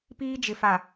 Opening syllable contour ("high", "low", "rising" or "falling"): high